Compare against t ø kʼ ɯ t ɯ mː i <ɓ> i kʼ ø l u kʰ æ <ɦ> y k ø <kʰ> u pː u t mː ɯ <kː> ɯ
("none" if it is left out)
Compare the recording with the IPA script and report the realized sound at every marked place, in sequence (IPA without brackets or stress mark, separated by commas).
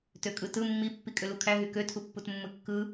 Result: pː, ɦ, tʰ, kː